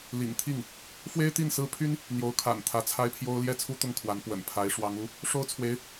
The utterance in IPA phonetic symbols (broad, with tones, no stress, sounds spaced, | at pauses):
l ḭ˨˩ ŋ t̪ʰ i˥˩ ŋ | f w e˥ ɪ̯ t̪ i˥˩ n s ɹ̩˥ pʰ y˥ n | n̪ j o˧˥ ʊ̯ kʰ a̰˨˩ n t̪ʰ ä˧˥ t͡sʰ a˥ ɪ̯ pʰ j o˥ ʊ̯ l j ɛ˥˩ t͡sʰ u˥ t̪ ʊ˥˩ ŋ kʰ w a˧˥ n p w ə̰˨˩ n pʰ a˧˥ ɪ̯ ʂ w ɑ˧˥ ŋ u˧˥ | ʂ o˥ ʊ̯ t͡sʰ w e˧˥ ɪ̯